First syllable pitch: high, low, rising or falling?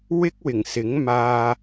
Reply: high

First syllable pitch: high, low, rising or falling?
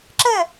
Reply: falling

